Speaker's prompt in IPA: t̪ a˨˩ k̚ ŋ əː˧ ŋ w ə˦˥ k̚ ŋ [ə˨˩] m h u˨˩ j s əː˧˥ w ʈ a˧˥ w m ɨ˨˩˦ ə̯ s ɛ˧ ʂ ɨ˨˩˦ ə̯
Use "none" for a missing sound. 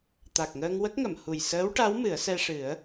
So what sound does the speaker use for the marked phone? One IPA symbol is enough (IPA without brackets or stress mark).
ə˨˩˨